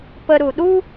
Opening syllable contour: high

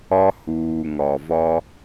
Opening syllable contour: high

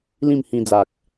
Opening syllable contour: falling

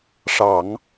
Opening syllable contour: low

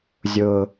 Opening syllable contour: high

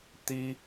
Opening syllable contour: high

